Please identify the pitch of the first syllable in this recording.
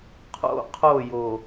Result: high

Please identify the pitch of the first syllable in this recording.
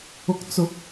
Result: rising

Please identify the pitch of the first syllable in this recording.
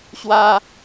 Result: high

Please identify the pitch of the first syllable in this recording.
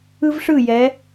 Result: high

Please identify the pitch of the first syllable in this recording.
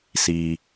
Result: low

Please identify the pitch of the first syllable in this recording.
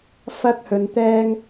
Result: high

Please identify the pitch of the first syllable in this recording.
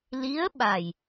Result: rising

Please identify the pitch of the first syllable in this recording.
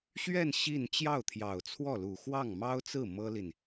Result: falling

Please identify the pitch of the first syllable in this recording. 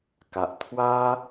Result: low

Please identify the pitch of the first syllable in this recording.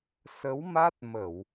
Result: rising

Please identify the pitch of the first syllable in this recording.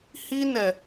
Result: high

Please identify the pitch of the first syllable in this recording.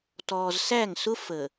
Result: low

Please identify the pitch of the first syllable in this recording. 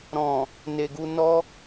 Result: low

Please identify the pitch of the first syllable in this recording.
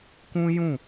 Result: high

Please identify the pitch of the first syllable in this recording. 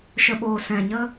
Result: low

